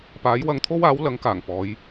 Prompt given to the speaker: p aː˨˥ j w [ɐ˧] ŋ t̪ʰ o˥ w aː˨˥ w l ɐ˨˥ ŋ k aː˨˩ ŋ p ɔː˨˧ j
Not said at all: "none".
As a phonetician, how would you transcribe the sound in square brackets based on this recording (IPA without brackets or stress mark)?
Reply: ɐ˧